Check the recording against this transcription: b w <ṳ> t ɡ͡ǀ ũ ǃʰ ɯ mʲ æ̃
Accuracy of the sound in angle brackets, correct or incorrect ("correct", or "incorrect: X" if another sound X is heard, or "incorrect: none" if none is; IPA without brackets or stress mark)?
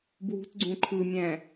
correct